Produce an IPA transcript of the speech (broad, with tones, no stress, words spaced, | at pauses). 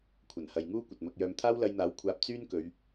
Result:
kʷʰɐ˨˩nhɐ˨jŋuː˥ kʷɐ˨t̚mɐ˧k̚jœː˧m t̪ʰaː˥wlɐ˧jn̪aː˨˥w kʷʰaː˧p̚ t͡syː˥nkɵ˨˧ɥ